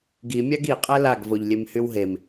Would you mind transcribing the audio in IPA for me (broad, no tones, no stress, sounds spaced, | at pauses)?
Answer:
ɡ i mʲ a ɡ i qʼ ɛ l a ɡ v o ʎ lʲ e m h y w ɦ e m